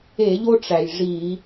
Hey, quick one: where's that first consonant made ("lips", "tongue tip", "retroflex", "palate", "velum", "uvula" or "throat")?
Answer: palate